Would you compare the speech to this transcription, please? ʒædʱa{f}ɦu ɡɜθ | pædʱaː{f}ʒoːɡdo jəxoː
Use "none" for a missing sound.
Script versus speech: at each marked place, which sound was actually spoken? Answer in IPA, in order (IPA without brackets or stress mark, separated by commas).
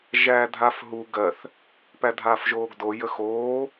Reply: f, f